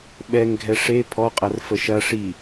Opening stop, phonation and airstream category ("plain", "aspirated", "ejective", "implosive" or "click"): implosive